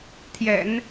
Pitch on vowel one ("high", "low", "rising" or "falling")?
low